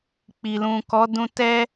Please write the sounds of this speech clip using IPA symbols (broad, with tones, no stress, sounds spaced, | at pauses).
k͡p i˨ l ũ˨ k ɔ˨˦ d ũ˧ t ɛ˧